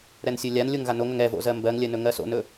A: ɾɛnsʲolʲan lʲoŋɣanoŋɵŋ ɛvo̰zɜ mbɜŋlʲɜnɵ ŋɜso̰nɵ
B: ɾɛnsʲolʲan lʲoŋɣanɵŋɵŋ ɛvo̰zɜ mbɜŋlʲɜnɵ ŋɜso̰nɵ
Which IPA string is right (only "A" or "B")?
A